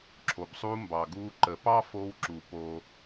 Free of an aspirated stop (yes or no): no